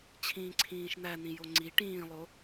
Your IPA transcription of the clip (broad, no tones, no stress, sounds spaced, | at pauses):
t͡ɕʰ ĩː ǀʰ ĩː ʃ n̪ æ n̪ ĩ j o ŋ͡ǀ i ʈ ĩː lˠ o